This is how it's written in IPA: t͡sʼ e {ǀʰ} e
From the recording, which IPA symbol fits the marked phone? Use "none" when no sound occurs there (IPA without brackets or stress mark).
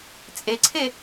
ǀʰ